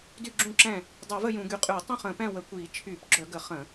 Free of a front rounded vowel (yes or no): no